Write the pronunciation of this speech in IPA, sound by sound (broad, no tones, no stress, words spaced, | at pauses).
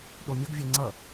ɗomʲʌɡvʲɛ ŋ͡ǀʌ